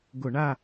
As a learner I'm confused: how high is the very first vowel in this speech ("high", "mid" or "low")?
high